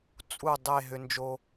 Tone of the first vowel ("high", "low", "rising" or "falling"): falling